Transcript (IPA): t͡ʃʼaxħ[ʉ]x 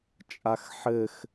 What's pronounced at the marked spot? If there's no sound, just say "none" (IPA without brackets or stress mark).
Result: ɘ